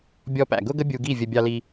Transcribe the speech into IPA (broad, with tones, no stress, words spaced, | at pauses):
bʲɔ˧pæ̰˨ɡʊ˦ɡə˦ bʲu˧ɡi˦˨vʲə˧ bʲɑ˧li˧